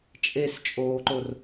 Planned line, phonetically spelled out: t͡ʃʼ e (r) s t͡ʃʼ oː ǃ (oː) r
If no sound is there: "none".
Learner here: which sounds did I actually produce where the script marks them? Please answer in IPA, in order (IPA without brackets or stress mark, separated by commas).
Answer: none, o